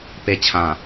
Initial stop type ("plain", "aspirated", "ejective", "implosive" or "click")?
plain